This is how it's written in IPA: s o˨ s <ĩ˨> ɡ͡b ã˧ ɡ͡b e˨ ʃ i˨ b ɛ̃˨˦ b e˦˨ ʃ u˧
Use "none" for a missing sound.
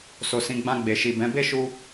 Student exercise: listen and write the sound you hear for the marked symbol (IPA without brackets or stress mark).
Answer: ĩ˨